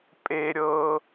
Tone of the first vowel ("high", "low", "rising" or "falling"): high